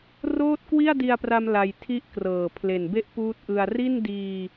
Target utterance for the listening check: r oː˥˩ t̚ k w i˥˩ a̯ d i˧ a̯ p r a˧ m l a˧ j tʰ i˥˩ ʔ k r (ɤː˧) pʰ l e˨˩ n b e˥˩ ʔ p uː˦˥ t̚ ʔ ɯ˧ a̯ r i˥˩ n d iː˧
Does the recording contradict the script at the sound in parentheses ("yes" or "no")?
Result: yes